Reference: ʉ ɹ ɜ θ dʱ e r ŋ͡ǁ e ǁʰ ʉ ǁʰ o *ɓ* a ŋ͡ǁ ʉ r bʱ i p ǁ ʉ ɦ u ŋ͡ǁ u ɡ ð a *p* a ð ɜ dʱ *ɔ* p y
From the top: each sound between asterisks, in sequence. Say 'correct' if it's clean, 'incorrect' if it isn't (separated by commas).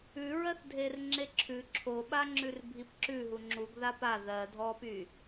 correct, correct, correct